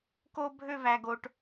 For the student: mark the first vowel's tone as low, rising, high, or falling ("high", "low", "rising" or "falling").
high